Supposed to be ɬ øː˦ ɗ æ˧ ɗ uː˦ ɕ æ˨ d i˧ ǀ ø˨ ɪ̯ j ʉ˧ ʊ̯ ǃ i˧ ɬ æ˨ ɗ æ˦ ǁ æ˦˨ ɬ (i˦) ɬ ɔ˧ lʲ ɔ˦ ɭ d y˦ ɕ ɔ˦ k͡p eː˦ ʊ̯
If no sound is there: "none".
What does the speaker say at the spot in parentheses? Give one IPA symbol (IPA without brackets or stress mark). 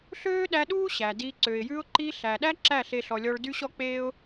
e˦